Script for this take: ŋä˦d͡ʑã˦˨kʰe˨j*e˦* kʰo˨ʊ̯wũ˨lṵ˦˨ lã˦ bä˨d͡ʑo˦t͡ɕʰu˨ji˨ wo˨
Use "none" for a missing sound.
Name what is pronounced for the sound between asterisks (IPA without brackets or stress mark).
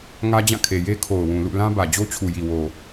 e˦